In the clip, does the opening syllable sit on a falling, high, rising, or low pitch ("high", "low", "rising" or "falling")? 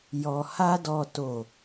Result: low